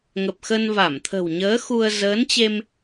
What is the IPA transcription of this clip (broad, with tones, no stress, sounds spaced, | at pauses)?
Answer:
ŋ ə˨˩ p̚ x ə˧ n v a˧˩ m t̪ʰ ə̤˨˩ w ɲ əː˨˦ x u˧ ə̯ z əː˨˦ n t͡ɕ e˧ m